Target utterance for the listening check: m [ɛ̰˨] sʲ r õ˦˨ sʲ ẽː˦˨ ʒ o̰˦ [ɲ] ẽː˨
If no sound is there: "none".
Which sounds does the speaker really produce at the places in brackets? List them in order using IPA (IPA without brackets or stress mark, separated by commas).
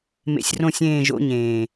ḛ˨, ɲ